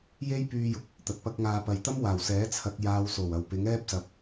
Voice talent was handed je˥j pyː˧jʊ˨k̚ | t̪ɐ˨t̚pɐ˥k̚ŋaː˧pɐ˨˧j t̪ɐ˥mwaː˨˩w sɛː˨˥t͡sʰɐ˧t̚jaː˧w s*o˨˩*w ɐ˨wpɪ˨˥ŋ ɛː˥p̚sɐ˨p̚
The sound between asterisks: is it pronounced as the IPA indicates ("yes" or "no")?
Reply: yes